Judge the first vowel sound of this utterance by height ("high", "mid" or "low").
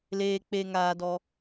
mid